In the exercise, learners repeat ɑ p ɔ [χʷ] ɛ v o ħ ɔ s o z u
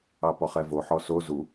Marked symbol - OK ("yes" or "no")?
no